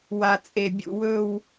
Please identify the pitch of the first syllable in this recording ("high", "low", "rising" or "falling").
low